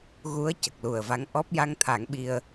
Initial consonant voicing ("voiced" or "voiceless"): voiced